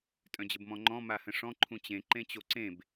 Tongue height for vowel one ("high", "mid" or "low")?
mid